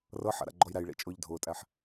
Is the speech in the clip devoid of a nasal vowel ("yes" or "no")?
yes